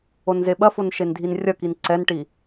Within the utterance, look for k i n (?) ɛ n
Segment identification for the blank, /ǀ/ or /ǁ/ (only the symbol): ǀ